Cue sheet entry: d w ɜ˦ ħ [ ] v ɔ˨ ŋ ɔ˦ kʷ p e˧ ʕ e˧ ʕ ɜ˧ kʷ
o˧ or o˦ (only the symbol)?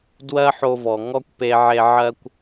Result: o˧